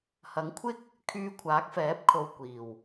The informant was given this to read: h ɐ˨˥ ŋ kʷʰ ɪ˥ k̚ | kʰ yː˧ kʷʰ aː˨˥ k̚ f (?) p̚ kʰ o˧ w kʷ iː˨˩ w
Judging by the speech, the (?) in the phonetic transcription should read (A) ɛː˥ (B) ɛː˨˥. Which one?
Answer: B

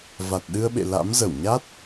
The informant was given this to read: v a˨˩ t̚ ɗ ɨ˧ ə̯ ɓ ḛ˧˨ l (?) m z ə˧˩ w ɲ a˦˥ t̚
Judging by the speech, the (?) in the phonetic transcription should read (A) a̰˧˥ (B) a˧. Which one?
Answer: A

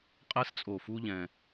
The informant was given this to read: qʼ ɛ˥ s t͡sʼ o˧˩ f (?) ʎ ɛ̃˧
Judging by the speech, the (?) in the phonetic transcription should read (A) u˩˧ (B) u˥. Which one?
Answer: B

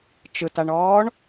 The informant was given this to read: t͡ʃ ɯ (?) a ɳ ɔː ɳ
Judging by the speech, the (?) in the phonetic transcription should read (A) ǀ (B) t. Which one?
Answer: B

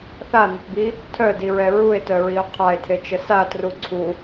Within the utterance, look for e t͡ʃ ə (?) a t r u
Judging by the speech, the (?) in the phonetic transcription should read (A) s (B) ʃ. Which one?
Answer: A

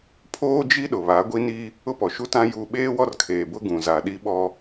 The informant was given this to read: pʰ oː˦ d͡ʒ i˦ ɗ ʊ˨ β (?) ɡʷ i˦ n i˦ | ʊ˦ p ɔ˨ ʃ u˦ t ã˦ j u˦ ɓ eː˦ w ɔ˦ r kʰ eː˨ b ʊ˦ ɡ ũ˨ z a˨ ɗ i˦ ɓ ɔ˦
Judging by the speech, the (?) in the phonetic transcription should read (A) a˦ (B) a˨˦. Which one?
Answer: B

